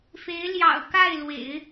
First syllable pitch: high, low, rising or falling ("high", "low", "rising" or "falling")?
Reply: rising